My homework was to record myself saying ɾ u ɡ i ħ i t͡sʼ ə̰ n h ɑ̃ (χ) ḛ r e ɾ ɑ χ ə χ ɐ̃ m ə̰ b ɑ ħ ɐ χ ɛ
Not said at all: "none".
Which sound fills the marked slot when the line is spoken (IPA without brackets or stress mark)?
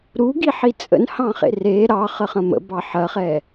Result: χ